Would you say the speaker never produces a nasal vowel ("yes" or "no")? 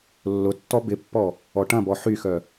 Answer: no